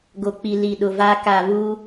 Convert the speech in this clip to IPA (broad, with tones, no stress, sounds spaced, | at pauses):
ɡ o˨ k͡p i˨ l i˨ ɗ ʊ˨ v aː˦ k a˦˨ β uː˦